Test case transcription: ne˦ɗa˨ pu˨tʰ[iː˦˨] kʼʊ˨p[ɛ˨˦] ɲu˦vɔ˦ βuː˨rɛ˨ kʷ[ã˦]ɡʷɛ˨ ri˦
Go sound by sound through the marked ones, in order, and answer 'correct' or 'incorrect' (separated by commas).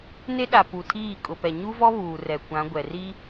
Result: correct, incorrect, incorrect